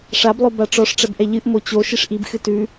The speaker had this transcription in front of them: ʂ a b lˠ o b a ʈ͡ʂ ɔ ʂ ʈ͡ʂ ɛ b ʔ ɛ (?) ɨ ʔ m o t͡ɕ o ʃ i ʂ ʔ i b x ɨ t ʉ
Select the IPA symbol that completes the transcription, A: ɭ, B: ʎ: B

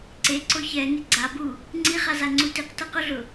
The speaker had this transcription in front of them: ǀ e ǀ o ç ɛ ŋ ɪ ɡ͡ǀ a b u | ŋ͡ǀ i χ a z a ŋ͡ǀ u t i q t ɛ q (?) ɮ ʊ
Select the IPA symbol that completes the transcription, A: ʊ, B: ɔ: A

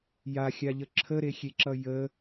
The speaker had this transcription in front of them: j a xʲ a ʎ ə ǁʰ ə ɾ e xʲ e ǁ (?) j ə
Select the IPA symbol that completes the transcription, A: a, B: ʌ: B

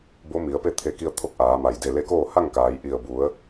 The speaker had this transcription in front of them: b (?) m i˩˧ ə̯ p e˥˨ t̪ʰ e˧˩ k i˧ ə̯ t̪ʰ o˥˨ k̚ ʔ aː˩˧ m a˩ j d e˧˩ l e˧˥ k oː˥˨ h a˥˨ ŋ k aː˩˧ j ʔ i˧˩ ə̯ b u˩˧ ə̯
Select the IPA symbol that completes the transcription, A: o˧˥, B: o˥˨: A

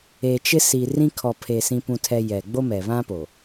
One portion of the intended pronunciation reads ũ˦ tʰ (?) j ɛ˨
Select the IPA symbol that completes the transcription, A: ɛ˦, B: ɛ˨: A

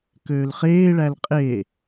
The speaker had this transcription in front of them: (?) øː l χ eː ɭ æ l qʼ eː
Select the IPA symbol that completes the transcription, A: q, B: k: B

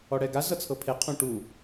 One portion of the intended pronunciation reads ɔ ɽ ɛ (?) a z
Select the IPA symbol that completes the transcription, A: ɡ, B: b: A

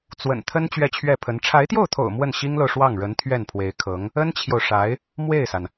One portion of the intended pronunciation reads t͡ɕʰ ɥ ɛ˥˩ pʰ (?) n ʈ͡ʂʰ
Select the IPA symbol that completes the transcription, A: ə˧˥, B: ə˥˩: A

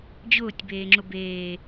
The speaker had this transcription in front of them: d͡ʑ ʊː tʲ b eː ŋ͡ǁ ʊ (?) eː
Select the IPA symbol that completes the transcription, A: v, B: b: B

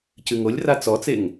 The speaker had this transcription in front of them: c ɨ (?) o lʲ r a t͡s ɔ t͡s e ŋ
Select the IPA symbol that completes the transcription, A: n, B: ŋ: B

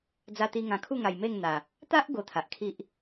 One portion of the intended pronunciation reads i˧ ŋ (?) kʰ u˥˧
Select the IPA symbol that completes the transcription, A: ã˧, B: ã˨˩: B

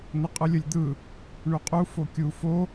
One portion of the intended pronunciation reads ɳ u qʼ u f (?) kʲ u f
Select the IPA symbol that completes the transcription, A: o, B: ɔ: A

